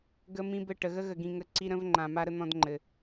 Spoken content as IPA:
ɡ ə˦ m ĩ˦ b ɘ˦˨ ʈ ə˨ ɣ ə˦ ɣ ə˨ ɡ ĩ˨ ŋ ə˨˦ ǀ i˦ ɾ ə̃˦ v ŋ͡ǃ ã˨ m a˦ ɾ ə˦ n̪ ɔ̃˦ d ŋ͡ǃ ɘ˨

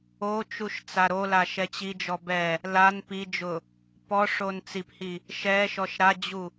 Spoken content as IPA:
o t͡ʃ u ʃ t͡s a ɾ o l a ʃ ɛ t͡ɕ i d͡ʒ ɔ b ɛ | l a n p i d͡ʒ ʊ | p ɔ ʂ o n t͡s i p h i | ʃ ɛ ʃ ɔ ʃ ɾ a d͡ʑ u

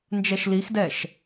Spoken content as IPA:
n d͡ʒ ɛ ʃ l i x d ɛ ʃ

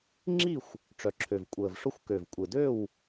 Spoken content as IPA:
ŋ͡ǁ i˥˨ xʷ | ʈ͡ʂ œ˨˩ ǁʰ ø˨˩ v kʷʼ əː˨˩ v ʂ ʊ˥˨ xʷ k ø˨˩ v kʷʼ ɪ˨˩ d ø˥˨ w

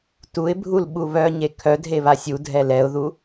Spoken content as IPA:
t u ɪ̯ bʱ u l ɓ u β œ ɲ e kʰ œ dʱ e β a sʲ u dʱ ɛ l ɛ ʊ̯ ð u

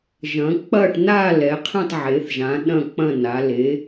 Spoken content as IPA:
ʒ ɐ̃˩˧ k͡p ɐ˦˨ ʈ n̪ a˦˨ l ɛ˩˧ qʰ ẽ˦˨ tˤ ʕ e˩˧ θ ʒ ã˩˧ ɗ ɐ̃˦˨ k͡p ɐ̃˦˨ n a˩˧ l e˩˧

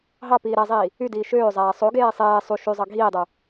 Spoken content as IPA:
ɦ ɑ p iː ɾ æ zˤ iː | y d iː ʃ øː zˤ æː sˤ o ɡ eː sˤ eː sˤ u ʃ y zˤ ɑ ɡʱ iː dˤ u

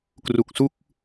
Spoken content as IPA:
k r u˨˩ k̚ s u˥˩ k̚

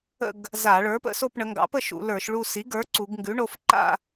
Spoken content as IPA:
ə̰˥˧ ɡ | z a˧˩˧ ɭ ə˞˩˥ p ə̰˩˧ s o˥˧ p ɳ ə˩˧ ŋ ɡ ɑ̰˩˥ p ə˥˧ ʃ ṵ˧˩˧ l ə˞˧˩˧ ʃ ɭ u˥˧ s i˩˥ ɡ ə˞˩˥ ǀ u˩˧ ɡ ŋ ɡ ʉ˩˥ ɳ o˩˧ f ǃ a̰˥˧

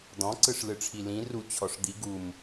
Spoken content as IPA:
d̪ ɔ̃ ǀ ɯ ʂ l ɯ ʈ͡ʂʰ i l ĩ r u t͡ɕʰ ɔ ʂ d̪ i ɡ u m

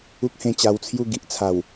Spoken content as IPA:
u˦ k̚ h ẽ˧ t͡ɕ a˧ w t͡sʰ j u˥˧ ɡ i˨ ʔ t͡sʰ a˨˩ w

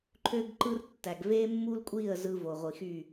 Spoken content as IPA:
ǃʰ ø˦ ɡ ǃ ɯ˦ r tː æ˨ ɡ v e˦ mː u˦ l kʷʼ i˦˨ ə̯ z ɯ˦ v o˨ ʁʷ i˨ x y˦˨

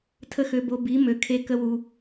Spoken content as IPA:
tʰ ə˦ x ø˧ b o˧ b i˨˦ m ø˧ kʰ e˧ k ə˦ w u˧

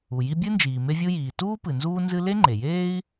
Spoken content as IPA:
u˩ j i˥ bʲ ɨ˥ n d͡ʒ iː˩ m e˥ vʲ u˥ j iː˩ t uː˥ p ɨ˩ n z uː˥ n z ɨ˥ l e˥ ŋ͡ǃ e˩ j eː˥ i̯

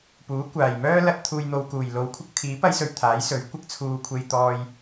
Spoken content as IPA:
p uː˨˥ kʷ aː˨˩ j m œː˥ l ɐ˧ t̚ t̪ʰ uː˨ j n̪ o˨ w k uː˨˩ j l o˨˧ w kʷʰ ɪ˥ k̚ t̪ʰ iː˨˥ p ɐ˥ j s ɵ˧ ɥ t̪ʰ aː˨˥ j s ɵ˨˥ ɥ kʷ ɪ˨ k̚ t͡sʰ uː˨ kʷʰ e˨ j t̪ ɔː˨ j

